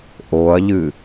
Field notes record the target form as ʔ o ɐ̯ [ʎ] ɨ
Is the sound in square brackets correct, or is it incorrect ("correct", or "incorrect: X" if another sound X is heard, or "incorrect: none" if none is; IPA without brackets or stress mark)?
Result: correct